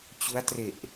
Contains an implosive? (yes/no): no